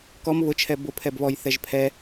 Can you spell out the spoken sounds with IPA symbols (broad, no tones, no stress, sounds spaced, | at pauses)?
k ɔ m β ʊ t͡ʃʰ ɛ b ʊ pʰ ɛ b β ɔ j θ ɛ ʒ pʰ ɛ